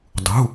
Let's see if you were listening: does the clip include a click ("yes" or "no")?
no